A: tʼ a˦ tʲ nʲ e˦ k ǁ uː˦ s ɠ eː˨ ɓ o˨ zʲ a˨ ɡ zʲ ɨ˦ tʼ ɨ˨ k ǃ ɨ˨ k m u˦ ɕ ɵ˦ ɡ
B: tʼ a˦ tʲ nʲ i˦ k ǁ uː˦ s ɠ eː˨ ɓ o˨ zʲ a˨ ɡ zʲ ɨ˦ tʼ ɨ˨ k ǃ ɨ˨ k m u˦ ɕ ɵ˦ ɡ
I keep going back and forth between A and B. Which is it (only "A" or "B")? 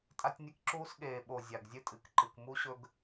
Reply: A